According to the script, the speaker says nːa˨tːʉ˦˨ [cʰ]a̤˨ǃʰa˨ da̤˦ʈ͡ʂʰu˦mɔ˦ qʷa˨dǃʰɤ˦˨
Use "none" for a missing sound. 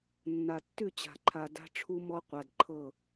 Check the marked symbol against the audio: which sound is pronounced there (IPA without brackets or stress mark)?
t͡ɕ